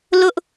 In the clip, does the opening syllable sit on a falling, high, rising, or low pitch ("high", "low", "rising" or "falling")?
high